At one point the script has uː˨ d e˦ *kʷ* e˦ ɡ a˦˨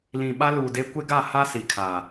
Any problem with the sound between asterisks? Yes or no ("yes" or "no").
no